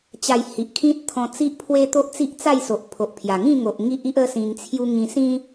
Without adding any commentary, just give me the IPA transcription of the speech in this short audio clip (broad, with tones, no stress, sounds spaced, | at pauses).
t͡ɕ a˧ j h i˨ ʔ kʰ ĩ˦ t̚ t̪ʰ ɔ̃˧ t͡s i˦ ʔ pʰ w e˦ t̪ o˦ ʔ t͡s i˦ ʔ t͡s a˥˧ j s o˨ ʔ pʰ o˨ ʔ pʰ j a˨˩ ŋ ĩ˥˧ ŋ o˨ ʔ ŋ i˦ ʔ i˦ ʔ ə˦ s ĩ˧ ŋ t͡sʰ j u˦ ŋ ĩ˧ s ĩ˦